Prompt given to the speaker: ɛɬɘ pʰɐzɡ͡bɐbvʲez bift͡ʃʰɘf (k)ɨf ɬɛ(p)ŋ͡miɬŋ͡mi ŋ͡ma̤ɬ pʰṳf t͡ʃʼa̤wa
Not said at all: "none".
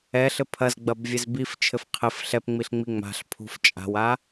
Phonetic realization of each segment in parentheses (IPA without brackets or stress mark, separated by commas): qʰ, p